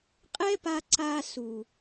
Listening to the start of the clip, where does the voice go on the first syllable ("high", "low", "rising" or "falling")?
high